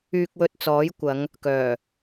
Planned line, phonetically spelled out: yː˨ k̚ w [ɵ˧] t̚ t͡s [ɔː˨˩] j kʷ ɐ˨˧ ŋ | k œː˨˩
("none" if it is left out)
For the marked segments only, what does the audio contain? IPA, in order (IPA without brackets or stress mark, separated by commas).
ɵ˨, ɔː˨˥